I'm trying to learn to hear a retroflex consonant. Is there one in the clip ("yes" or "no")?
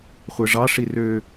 yes